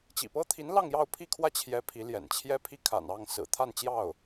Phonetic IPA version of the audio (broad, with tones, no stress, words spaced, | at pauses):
t͡ɕḭ˨˩pɤ˥t̪ʰi˧˥n lɑ˥˧ŋjɑ˥˧ʊ̯pʰi˥˧kʰwä˥˩ t͡ɕʰjɛ˧˥ pʰi˧˥ljɛ̰˨˩n t͡ɕʰjɛ˥pʰi˥˩ kʰa̰˨˩n ɑ˥˩ŋsɹ̩˨˩ t̪ʰa˥˧nt͡ɕjɑ˥˩ʊ̯